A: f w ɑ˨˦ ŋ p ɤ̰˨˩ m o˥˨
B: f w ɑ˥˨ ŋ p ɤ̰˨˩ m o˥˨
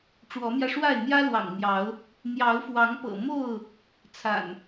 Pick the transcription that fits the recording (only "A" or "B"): A